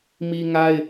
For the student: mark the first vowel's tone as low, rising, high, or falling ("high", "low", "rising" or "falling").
high